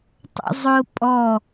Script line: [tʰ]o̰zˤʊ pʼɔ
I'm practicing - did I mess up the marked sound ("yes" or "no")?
yes